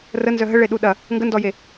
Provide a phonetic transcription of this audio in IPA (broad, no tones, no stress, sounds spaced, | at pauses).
r ə n z œ ɦ ə ɭ e ɗ u ɗ ɐ | ŋ ɡ ə n d ɔ j e